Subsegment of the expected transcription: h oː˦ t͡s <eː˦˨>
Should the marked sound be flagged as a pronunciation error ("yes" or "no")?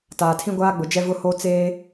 yes